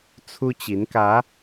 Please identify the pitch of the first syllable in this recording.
high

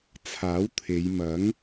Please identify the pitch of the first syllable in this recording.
rising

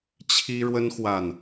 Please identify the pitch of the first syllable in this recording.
high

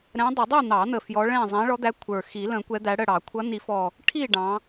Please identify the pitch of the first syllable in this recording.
rising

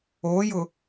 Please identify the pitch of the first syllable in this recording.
rising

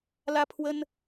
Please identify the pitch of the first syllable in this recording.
high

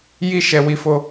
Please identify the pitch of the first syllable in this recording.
high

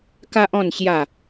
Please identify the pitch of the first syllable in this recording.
high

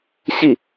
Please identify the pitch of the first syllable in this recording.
falling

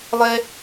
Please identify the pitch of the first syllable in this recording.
high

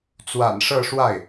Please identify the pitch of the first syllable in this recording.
low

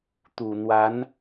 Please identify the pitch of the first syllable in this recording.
low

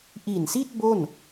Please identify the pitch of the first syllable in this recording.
low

